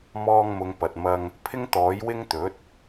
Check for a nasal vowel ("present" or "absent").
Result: absent